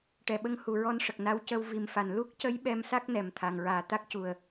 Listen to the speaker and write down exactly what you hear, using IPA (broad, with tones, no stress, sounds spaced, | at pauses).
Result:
ʈ ɛ˨˩ ɓ ə˧ ŋ h u˨˩ ɹ ɔ˧ n ʂ ə˨˩ k̚ n a˧ w c ə˧ w v i˨˩ m f a˨˩ n l u˦˥ k̚ c ə˧˥ j ɓ ɛ˧˥ m s a˦˥ k̚ n ɛ˨˩ m t̪ʰ a˨˩ ŋ ɹ aː˨˩ t̪ a˦˥ k̚ c u˨˩ ə̯